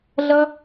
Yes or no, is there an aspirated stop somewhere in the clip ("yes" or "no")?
no